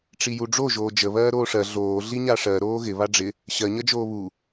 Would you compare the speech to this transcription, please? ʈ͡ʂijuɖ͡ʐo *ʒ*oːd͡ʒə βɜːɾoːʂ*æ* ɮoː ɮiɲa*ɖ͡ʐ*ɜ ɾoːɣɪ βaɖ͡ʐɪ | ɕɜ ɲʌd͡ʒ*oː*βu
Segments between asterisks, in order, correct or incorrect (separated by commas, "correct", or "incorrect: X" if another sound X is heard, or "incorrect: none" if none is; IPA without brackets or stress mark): correct, incorrect: ɜ, incorrect: ʂ, correct